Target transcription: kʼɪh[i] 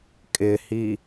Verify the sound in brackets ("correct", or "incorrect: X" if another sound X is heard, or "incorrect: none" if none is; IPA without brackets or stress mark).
correct